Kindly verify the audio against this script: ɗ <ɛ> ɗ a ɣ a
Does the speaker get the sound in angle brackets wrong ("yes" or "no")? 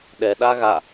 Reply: no